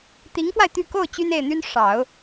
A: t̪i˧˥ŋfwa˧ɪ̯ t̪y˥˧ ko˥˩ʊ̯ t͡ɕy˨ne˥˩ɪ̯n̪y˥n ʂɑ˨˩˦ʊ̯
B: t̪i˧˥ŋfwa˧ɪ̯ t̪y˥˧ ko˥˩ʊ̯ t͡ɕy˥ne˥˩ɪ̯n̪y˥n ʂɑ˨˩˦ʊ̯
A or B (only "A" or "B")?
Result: B